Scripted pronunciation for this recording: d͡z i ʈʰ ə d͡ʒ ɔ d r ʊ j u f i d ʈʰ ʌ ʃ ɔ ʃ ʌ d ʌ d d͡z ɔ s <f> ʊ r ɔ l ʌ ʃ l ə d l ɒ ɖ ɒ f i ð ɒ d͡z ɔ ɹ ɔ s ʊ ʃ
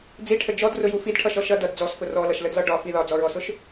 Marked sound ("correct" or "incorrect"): correct